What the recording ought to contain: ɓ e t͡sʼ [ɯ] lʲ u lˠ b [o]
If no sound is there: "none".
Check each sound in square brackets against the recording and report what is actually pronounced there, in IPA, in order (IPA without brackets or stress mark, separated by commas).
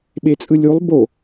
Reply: ɯ, o